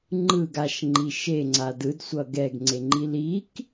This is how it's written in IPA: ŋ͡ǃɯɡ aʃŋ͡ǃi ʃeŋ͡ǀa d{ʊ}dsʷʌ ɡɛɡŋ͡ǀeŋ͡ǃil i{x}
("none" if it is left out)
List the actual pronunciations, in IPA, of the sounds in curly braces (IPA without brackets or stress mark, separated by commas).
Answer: ɯ, k